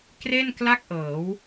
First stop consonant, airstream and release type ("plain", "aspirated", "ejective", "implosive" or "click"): plain